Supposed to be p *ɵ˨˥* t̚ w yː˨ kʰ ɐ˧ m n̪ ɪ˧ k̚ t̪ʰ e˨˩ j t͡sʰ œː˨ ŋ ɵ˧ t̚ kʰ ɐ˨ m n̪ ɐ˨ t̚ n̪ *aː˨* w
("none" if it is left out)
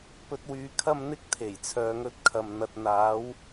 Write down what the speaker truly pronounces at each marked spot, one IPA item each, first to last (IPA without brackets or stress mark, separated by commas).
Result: ɵ˧, aː˨˧